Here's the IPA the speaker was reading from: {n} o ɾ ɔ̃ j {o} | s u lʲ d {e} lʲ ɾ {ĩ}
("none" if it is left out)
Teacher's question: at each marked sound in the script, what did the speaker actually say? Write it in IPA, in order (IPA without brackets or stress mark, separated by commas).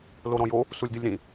l, o, ɨ, ĩ